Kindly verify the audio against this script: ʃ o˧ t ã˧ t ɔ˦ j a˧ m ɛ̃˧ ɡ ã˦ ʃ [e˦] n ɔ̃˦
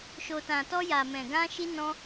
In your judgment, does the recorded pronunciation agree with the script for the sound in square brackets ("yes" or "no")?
no